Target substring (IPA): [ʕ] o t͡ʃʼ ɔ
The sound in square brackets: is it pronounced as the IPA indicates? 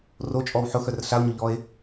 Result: no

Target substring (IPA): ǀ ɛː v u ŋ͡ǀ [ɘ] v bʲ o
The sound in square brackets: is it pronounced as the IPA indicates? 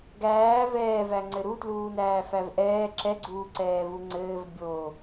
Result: no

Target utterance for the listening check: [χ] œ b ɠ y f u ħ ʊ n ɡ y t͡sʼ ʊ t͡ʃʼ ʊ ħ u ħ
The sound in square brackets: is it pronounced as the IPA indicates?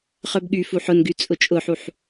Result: yes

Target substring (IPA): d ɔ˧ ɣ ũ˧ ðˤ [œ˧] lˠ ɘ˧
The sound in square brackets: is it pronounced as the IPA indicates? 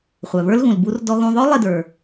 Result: no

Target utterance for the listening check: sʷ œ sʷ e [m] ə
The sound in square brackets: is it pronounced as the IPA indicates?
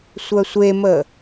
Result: yes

